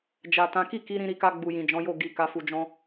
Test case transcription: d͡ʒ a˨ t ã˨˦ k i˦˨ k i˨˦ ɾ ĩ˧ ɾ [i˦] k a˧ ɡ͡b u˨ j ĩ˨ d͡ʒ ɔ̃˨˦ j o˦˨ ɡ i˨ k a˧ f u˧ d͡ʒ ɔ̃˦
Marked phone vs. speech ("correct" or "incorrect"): incorrect